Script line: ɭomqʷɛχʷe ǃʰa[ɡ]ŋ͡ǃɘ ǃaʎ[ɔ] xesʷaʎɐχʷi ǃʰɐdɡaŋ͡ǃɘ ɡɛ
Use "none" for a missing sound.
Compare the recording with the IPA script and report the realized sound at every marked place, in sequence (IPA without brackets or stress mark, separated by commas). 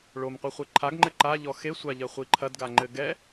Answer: ɡ, ɔ